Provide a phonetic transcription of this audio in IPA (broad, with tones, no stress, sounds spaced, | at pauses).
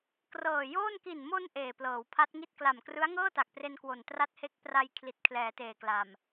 k r ɤː˨˩ j oː˥˩ n k i˨˩ n m o˧ n ʔ eː˨˩ p l ɤː˩˦ w pʰ a˦˥ t̚ ŋ i˥˩ t̚ k l a˨˩ m k r ɯ˦˥ a̯ ŋ ɤː˥˩ t a˨˩ k̚ p r e˧ n k w o˨˩ n t r a˦˥ t̚ h e˦˥ k̚ p r a˧ j kʰ l i˨˩ t̚ kʰ l ɛː˩˦ t eː˨˩ k l a˨˩ m